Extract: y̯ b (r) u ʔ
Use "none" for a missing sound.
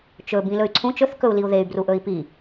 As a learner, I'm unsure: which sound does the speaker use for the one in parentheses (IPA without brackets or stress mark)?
r